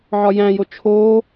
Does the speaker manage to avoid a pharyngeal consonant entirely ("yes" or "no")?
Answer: no